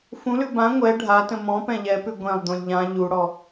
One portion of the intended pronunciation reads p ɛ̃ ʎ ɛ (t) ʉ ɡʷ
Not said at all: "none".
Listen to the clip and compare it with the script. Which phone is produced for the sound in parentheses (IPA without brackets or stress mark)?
p